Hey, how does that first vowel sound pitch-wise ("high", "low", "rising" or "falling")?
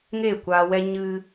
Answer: falling